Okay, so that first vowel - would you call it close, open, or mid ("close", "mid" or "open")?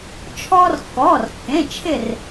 mid